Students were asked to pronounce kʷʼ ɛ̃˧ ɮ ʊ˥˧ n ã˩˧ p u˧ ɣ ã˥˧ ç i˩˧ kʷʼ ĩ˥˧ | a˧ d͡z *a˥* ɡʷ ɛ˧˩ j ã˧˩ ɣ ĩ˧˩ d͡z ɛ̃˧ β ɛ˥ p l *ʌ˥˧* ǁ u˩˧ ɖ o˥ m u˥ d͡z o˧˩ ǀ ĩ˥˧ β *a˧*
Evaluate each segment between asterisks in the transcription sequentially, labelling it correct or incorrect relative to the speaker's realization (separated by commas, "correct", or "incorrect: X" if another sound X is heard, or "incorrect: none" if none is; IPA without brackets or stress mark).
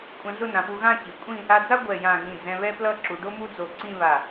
correct, correct, incorrect: a˧˩